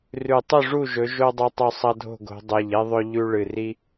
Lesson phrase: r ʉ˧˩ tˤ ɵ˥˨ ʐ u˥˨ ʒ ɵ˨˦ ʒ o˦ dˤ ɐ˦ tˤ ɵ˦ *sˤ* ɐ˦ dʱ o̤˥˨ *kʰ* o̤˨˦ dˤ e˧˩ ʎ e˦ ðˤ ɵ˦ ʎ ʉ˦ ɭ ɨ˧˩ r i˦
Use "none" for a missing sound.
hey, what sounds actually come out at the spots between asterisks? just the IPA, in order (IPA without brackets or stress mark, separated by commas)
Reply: sˤ, ɡ